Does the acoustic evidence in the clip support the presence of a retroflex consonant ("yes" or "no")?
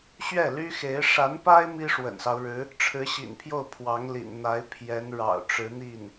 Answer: yes